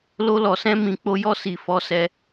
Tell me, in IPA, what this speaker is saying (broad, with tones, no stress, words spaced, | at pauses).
lo˧lɔ˨sɛ̃˧ mĩ˨k͡po˨˦jɔ˧ si˨ fɔ˨˦sɛ˧